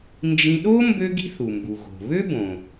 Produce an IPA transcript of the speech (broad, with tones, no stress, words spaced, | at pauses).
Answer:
nd͡ʒĩ˥ ɗo˥ mbø˥ɡi̤˥θu˩mbu˩ ɣo̤˩ βø˥bõ˩